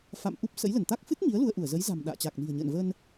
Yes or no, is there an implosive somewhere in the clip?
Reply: yes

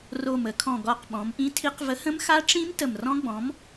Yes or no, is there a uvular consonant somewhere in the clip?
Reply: yes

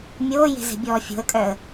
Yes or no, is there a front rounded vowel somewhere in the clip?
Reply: yes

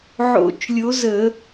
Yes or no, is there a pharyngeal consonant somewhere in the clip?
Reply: yes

